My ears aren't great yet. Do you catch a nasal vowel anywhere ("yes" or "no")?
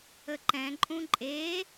yes